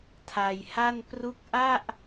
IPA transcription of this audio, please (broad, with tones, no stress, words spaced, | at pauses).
tʰa˧jha˥˩n pru˦˥k̚ʔa˥˩ʔ